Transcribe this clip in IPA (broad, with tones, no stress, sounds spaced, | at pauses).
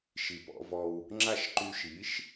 ʃ i˨ p ɔ̰˧ v ɔ˧ w | ŋ͡ǁ a˦˨ ʃ ǃ y˧ ʃ i˨˦ ʃ